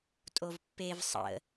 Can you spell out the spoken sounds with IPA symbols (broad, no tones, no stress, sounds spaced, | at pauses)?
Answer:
tʼ o v pː e v sˤ ə̰